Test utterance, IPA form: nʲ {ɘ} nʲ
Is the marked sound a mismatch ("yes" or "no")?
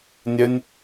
no